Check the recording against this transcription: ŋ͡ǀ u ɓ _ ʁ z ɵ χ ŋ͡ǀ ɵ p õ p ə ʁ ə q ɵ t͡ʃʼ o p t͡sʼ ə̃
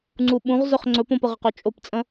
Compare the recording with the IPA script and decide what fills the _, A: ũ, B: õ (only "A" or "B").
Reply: A